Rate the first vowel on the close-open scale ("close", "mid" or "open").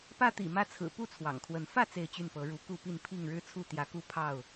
open